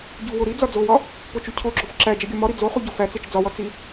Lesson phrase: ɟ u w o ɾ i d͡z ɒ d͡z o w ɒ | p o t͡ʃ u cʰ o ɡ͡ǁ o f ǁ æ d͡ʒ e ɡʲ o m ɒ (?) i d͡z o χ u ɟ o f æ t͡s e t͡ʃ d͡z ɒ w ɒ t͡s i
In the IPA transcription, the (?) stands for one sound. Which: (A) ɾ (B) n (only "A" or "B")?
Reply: A